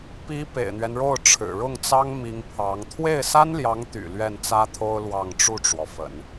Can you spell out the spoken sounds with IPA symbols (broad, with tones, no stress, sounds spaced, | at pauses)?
p i˧˥ p ḛ˨˩ ɪ̯ n̪ ɥ ɛ˦ n ɻ o˥˩ ʊ̯ ʈ͡ʂʰ ɻ̩˨˩ ɻ ʊ˥˩ ŋ t͡s ɑ˥ ŋ m i˧˥ ŋ pʰ ɑ˧˥ ŋ t̪ʰ w e˥˩ ɪ̯ s a˥ n l j ɑ˧˥ ŋ t̪ y̰˨˩ l ɥ ɛ˥˩ n t͡s ä˥ t̪ʰ o˥ ʊ̯ l w ɑ˥˧ ŋ ʈ͡ʂ u˥˩ ʈ͡ʂ w ɔ˩ f ə̰˨˩˦ n